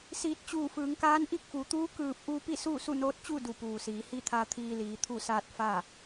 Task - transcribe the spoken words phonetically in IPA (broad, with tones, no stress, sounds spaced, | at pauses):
s iː˧˩ t̚ t͡ɕ uː˧˩ f ɯː˩˧ ŋ k aː˧˥ n ʔ i˥˨ k̚ f u˩˧ t̪ uː˧˥ k ɯː˧˩ p̚ ʔ u˧ p i˥˨ s uː˥˨ s u˥˨ n oː˧˥ t̚ t͡ɕ u˥˨ d u˧˩ p uː˩ s iː˩˧ h i˥˨ t̪ʰ a˧ t̪ʰ iː˧ l iː˩˧ t̪ʰ u˥˨ s aː˥˨ t̚ f a˥˨